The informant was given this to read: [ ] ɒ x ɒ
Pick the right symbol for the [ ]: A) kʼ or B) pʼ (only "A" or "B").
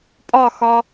B